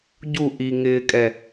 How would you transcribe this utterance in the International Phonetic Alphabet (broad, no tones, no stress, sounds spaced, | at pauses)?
ɟ u ʔ i ŋ ɪː kʼ ɛ